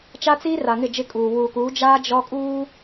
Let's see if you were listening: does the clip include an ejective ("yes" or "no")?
yes